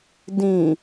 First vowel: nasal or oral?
nasal